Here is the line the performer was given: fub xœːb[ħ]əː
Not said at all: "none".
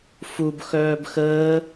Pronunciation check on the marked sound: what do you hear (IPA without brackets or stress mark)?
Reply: x